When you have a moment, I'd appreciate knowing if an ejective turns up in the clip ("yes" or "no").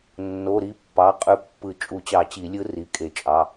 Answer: yes